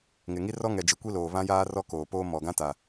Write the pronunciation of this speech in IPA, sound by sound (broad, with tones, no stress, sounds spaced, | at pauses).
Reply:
ŋ ɪ˨ ŋ i˦ r ɔ˦ ŋ ɛ˨ d͡ʒ i˨ kʷ i˦ l oː˨ β ã˦ j aː˦ r ɔ˦ k oː˨ p oː˦ m ɔ˨ ɡ ã˦ t a˨